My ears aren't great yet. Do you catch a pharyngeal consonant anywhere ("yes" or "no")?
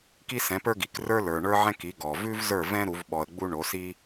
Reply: yes